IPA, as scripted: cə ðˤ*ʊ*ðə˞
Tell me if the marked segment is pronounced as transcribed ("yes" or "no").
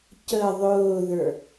no